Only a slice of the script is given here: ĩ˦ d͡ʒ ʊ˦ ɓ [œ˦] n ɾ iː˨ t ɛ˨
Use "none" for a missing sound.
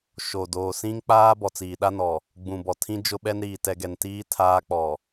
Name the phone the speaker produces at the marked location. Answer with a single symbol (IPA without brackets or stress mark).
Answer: ɛ˦